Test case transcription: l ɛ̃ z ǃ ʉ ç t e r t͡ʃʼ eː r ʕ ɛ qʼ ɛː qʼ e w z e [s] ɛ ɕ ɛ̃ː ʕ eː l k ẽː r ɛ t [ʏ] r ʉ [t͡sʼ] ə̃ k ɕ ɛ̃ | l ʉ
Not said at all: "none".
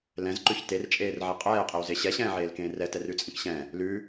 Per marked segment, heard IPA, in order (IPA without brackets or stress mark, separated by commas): ɕ, ɛ, t͡sʼ